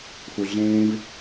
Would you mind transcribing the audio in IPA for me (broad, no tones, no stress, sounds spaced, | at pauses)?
f u ɮ ẽː v